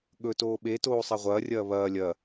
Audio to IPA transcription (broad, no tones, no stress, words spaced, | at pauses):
ɠɵ toːɓetoː sˤɐʁʷɐːrʲɐː βɐː lʲɐ